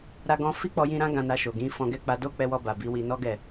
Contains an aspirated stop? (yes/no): no